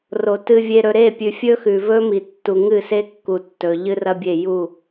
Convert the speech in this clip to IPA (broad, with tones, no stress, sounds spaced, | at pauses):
r o˨ t ɨ˨ vʲ e˨ ɾ ɵ˨ ɾ e˦˨ pʲ ʉ˨ fʲ ɵ˦ x ʉ˨ v ɵ˦ m i˨ tː u˨ ŋ ɨ˦˨ s e˦ kː u˨ tː ɵ˨ ʎ ɨ˦ r ɐ˦ bʲ e˦˨ j u˦˨